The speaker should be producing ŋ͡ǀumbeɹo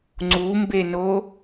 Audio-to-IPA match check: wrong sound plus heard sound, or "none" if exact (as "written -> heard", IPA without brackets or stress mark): ɹ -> n